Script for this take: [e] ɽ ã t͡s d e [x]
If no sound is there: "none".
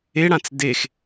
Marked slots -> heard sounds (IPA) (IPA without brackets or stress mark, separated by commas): e, x